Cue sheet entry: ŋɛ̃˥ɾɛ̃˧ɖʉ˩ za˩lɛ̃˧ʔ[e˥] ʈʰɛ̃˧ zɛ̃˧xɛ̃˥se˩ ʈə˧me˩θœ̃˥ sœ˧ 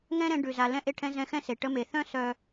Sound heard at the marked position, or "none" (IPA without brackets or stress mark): e˧